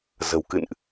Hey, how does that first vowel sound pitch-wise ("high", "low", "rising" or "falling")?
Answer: low